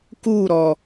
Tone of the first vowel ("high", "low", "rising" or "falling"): falling